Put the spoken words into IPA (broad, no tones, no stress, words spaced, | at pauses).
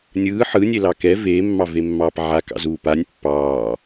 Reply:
nʲɯː ħɯnʲelɑ kɛ veːmːɑvemːɑːp ʕakɑ̰zuː panʲ pːɑː